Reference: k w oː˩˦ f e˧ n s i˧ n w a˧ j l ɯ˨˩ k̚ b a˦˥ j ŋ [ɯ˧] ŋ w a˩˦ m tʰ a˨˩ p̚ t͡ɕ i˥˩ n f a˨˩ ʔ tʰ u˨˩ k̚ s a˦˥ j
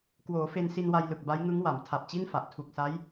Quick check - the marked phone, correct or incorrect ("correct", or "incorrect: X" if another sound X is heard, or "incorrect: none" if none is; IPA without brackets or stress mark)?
incorrect: ɯ˦˥